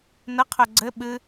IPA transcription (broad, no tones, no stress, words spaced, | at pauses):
nəqʰœ ɡ͡ǀɘ ɓɨ